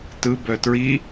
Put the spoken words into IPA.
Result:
t ɯ b œ t ɹ i

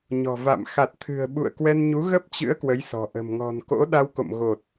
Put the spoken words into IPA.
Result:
ɲ ɔ̤˨˩ v a̰˧˨ m x a˨˩ t̚ t̪ʰ ɨ̤˨˩ ə̯ ɓ ṵ˧˨ ə̯ k w ɛ˧ n ɲ u˨˦ ɣ ə˦˥ p̚ t͡ɕ ɨ̰˧˥ ə̯ k w ə˨˦ j s ɔ̤˨˩ ʔ ə̤˨˩ m ŋ ɔ̤˨˩ n k o̰˧˥ ɗ a˧ w k o̰˧˨ m ɣ o˨˩ t̚

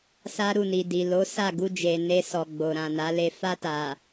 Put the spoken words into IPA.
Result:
s a˦ ɾ u˦˨ n i˨ d i˨ l o˨˦ s a˦˨ ɡ u˧ d͡ʒ e˨ n e˧ s ɔ˨ ɡ͡b o˨ ɾ ã˨ n a˨˦ l e˧ f a˧ t a˨

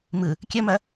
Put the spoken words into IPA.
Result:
m ɯ | kʲ ɐ m ɐ

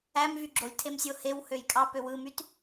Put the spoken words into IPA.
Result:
æ m v y ɡ͡ǁ o lʲ tʰ e m sʲ o h e w h ø j kʼ ɑ p ø w ɯ m y t

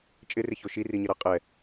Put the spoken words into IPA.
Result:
t͡ʃʼ ɪ r ɪ ç o ʃ i r i ɲ ɪ ɾ a qʼ ɛ

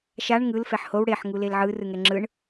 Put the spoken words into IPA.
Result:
ʃ a ɳ ŋ ɯ l f ɛ ħ h o w ɽ e ħ ŋ u l e l ʕ ɯ r ɯ ŋ ɛ ŋ͡ǁ ɯ ɳ

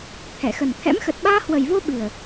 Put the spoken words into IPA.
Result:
t̪ʰ ɛ˧˩ x ə˨˩ n t̪ʰ ɛ̰˧˥ m x ə˨˩ t̚ ɓ aː˧ h w ə˨˩ j v o˧ ɓ ɨ˨˩ ə̯

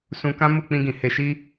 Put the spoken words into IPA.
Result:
s ũ˧ k ã˦ m u˦˨ k͡p ĩ˧ ɡ ĩ˨ h e˧ ʃ i˦

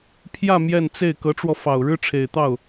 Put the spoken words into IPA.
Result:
pʰ j ä˥˧ m j ɛ˥˧ n t͡s e˥˩ ɪ̯ k ɤ˧˥ ʈ͡ʂ w ɔ˧ f ɑ˨˩ ʊ̯ ɻ ɻ̩˥ ʈ͡ʂʰ e˨˩ ɪ̯ t̪ ɑ˥˩ ʊ̯

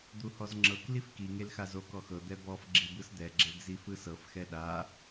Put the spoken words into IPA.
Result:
d̪ u h ɔ z ŋ͡ǁ ɤ k l i f k i ŋ e l x a z o k ɔ x ɤ d̪ ɛ b ɔ f ɡ͡ǁ i b ɯ s d̪ ɛ ɡ͡ǁ e ɡ z i f ɯ s ɤ f x ɛ ɗ a

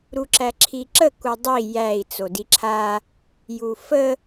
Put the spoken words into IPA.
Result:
ɾ u ǁ æ ǁʰ i ǁ ə k u dˤ i j æ i̯ t͡s o d i ǁʰ a | j u f ə

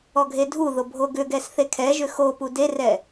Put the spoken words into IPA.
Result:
ɔ ɡʱ e dʱ u ð o bʱ o ɡ ʏ ɡ ɛ s θ e kʰ ɛ ʒ ʏ x o p u d e r ɛ

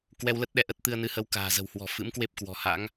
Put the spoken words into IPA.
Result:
k w ɛ˧ w l ə˦˥ t̚ ɗ ɛ˧ ʔ ə˦˥ t̚ t̪ ɨ˧ ə̯ n ɨ˧ h ə˧ w k a̤ː˨˩ z ə̤˨˩ w h w ɔ̤˨˩ f ɨ̰˧˥ m k w e˦˥ p̚ k w ɔ̤˨˩ h a̰˧˥ ŋ

